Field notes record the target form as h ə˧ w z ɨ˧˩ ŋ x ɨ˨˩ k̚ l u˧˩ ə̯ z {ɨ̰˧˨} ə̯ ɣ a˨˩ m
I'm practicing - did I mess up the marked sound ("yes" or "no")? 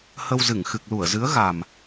yes